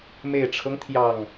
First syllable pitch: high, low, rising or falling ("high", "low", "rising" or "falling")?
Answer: low